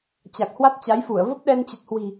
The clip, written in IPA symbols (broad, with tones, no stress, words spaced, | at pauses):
t͡ɕa˨˩k̚hwa˦˥t̚t͡ɕa˨˦jfu˧˩ə̯ və˦˥p̚ɗɛ˧n t͡ɕə˨˩t̚hwi̤˨˩